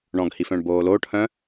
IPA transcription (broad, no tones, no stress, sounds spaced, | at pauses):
ɳ ɔ̃ ɡ h i f œ̃ ɳ b oː l o ʈʰ œ̃